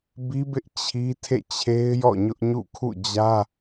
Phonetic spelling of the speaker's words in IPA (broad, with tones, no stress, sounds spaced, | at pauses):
b i˦ b ɪ˦ ʔ t͡ɕʰ i˦ tʰ ḛ˦˨ t͡ɕʰ e˦ ɪ̯ j ɔ̰˦˨ ɲ ʊ˦ ʔ ɲ ṵ˦˨ kʰ ṵ˦˨ d͡ʑ ä˦